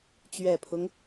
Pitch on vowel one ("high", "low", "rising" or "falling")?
low